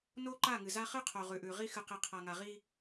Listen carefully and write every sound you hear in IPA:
n o˦ ǃ a˦˨ ŋ ɨ˨ z a˦ χ ɨ˦ qʰ o˨ ʁ ʉ˨ ʔ ʉ˨ ʁ i˦ x ɨ˨ q i˨ qʰ a˨ ŋ a˨ ʁ i˦

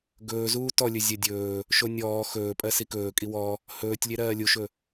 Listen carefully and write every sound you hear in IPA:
ɡ ɵː z uː t ɔ lʲ ɵ zʲ ɜ dʲ ɵː | ʃ o nʲ ɔː x ɵː pʼ ɜ s i k ɵː kʼ i w ɔ | h ɵː tʲ lʲ e ɾ ɜː lʲ u ʃ ɵ

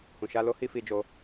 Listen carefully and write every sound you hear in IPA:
h ũ˨ ʃ a˧ l o˦ h i˦ f i˧ d͡ʒ o˧

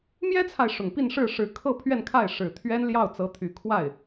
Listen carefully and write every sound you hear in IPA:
m j ɛ˥ t͡sʰ a˨ ɪ̯ ʂ ʊ˨˩ ŋ p i˥˧ n ʂ ɻ̩˥˩ ʂ ɻ̩˧˥ kʰ ɤ˥˧ pʰ ɥ ɛ˥˧ n kʰ a˥˩ ɪ̯ ʂ ɻ̩˨˩ t̪ʰ ɥ ɛ˥ n l j ɑ˥˩ ʊ̯ t͡s ɤ˧˥ t̪ʰ y˨˩ kʰ w a˥˩ ɪ̯

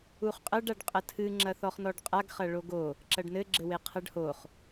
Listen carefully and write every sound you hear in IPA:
u χ qʼ ɐ ɖ a ɖ qʼ ɐ tʰ ɨ ŋ͡ǁ ɐ θ ɔ χ n ɔ ɖ qʼ a ɡ χ ɐ ɭ o ɡ o | ǁ ɐ ɖ n ɘ ɡ͡ǁ ɘ w e qʰ ɐ ɖ h o χ

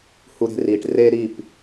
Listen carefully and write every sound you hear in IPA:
h u˨ ɾ e̤˨ r iː˨ ʈ r eː˦ ɾ i˦˨ p

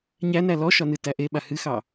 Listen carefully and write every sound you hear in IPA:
ɲ æ n æ l ɔ ʃ ɒ n ɨ t æ ʔ e ɓ a h ɨ x ɑ

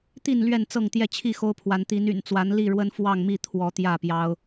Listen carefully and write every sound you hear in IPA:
t̪ i˥˨ n l ɥ ɛ˥˨ n t͡s ɤ˥˨ ŋ t̪ j ɛ˥˨ t͡ɕʰ i˥˨ x o˦ ʊ̯ pʰ w a˨˦ n t̪ i˨˦ n y̰˨˩ n t͡s w a˨˦ n l i˥˨ ɻ w ə˦ n f w ɑ˥˨ ŋ m i˥˨ t̪ʰ w ɔ˨˦ t̪ j ä˥˨ p j ɑ˦ ʊ̯

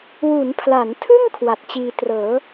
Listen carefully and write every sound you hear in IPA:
w u˩˦ n pʰ l a˩˦ n tʰ ɯ˥˩ ŋ kʰ w a˨˩ t̚ t͡ɕ iː˧ t r ɤː˩˦

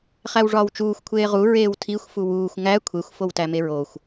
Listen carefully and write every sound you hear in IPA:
χ æ w ʐ ɒː w t͡ʃ uː xʷ kʷʰ eː ʁ u ɹ eː w tʰ i xʷ f u w uː xʷ ŋ æ kʷʰ e xʷ f o w t æ m e ɹ o xʷ

